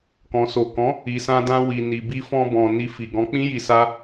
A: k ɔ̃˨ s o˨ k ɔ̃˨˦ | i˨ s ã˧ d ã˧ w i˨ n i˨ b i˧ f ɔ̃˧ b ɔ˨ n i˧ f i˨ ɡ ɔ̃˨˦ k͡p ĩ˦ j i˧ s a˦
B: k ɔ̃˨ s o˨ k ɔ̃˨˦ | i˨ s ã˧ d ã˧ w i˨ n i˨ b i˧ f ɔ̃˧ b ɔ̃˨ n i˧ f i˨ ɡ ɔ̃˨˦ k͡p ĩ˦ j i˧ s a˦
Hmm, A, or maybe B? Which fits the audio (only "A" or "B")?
B